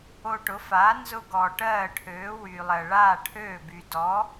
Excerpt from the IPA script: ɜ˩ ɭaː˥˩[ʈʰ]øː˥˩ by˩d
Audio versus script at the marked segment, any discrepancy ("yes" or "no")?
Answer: no